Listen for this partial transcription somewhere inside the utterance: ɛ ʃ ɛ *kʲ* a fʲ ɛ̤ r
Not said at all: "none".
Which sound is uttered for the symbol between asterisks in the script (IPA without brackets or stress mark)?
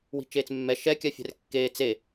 kʲ